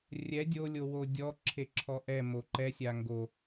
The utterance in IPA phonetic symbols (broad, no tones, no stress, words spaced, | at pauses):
rʲɛ dʲo lʲowodʲɔ ǁʰeǁʰɔʔɛ moǃɛ sʲaŋɡo